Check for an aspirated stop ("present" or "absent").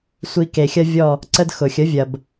absent